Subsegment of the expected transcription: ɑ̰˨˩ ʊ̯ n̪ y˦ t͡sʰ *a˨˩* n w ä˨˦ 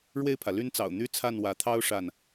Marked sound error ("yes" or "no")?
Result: yes